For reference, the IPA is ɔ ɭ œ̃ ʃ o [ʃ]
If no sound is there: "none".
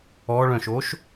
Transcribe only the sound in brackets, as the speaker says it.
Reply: ʃ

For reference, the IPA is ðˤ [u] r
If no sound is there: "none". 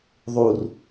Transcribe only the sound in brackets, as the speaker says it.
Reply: u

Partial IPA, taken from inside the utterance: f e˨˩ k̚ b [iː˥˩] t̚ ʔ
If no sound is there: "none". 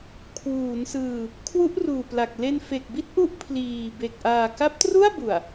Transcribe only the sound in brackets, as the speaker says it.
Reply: i˥˩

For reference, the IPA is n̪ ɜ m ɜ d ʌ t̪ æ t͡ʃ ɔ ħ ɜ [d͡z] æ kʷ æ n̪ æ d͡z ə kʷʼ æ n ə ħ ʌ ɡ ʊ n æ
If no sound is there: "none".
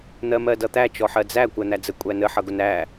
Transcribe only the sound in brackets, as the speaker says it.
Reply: d͡z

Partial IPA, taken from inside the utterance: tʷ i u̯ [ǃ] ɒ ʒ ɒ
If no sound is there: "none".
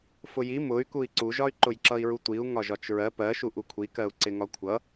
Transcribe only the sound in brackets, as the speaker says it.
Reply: ŋ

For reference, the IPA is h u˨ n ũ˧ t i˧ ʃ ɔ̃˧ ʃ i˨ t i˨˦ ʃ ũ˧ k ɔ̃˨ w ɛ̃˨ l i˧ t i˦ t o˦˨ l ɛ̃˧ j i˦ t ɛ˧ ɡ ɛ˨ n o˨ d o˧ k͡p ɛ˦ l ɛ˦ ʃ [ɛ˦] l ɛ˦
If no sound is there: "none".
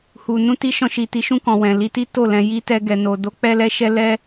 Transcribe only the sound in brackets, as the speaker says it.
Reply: ɛ˦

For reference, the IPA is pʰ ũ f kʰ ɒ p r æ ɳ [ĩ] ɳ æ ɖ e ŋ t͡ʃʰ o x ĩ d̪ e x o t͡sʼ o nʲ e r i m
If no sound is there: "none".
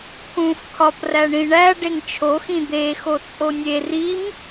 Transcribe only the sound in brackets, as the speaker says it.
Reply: ĩ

